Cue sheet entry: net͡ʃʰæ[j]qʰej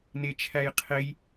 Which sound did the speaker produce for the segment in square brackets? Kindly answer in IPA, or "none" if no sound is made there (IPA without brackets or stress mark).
j